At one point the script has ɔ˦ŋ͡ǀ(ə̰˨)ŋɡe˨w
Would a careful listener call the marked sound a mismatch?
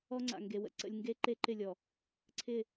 yes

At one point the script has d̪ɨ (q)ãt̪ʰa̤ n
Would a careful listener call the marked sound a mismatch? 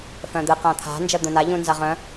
no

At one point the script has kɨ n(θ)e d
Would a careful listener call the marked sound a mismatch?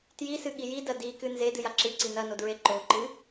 yes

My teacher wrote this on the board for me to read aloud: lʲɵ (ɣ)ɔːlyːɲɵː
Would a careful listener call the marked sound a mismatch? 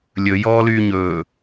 yes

